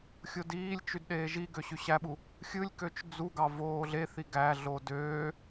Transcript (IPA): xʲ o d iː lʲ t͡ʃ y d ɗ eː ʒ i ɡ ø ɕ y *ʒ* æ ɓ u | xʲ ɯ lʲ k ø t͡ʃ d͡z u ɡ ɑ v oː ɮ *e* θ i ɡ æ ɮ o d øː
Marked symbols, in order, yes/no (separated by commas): no, yes